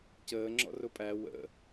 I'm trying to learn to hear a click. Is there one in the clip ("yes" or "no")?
yes